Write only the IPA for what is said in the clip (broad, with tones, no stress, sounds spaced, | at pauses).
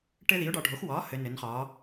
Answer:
ʈ ɘ˦ ð i˩˥ ʊ̯ ɖ ɒ˩˧ ɖʱ o˩˥ x w ɒː˩˥ h ɘ˩˧ n ɘ˩˧ n χ ɒː˩˧